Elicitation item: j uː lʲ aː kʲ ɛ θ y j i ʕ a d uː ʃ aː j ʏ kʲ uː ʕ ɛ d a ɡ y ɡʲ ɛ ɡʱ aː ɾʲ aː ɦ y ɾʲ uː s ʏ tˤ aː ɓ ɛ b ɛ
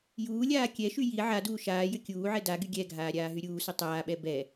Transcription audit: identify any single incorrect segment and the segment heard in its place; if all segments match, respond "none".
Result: θ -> ʃ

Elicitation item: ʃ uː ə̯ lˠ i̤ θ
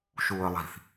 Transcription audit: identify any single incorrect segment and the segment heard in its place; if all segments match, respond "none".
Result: none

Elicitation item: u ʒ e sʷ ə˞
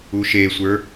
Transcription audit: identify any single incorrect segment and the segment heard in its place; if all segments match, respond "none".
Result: ʒ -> ʃ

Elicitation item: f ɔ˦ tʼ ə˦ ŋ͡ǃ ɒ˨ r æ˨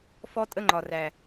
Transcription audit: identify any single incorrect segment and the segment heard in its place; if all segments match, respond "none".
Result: none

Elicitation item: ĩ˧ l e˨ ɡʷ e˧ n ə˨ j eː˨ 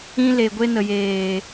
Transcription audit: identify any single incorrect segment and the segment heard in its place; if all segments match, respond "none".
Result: none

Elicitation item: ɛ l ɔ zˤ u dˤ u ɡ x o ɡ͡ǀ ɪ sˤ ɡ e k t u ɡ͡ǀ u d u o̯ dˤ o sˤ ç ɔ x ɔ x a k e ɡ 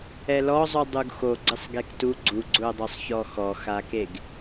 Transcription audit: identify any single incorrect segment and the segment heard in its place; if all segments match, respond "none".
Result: d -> ɡ͡ǀ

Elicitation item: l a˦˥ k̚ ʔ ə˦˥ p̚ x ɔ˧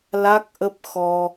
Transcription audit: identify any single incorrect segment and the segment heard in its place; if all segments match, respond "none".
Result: none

